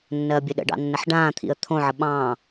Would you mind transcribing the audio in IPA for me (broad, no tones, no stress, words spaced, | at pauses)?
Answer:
nːɜːbʲəɗə̰ɖɑ̰ nːəħɖãːt̪ʰḭə̯ t̪ʰõʕə ɓɑ̃